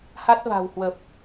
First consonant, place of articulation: glottal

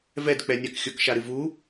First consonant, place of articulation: labial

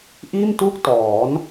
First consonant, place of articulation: glottal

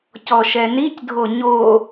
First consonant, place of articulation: palatal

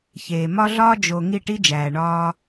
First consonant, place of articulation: palatal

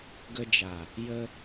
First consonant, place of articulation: velar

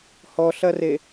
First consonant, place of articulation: glottal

